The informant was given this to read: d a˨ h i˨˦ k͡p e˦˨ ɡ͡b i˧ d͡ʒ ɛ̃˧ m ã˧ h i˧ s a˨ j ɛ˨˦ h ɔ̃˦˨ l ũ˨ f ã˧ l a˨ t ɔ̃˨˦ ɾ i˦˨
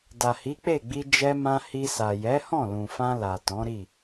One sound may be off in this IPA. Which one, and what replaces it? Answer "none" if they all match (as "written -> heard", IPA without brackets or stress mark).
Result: ɛ̃˧ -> ɛ˧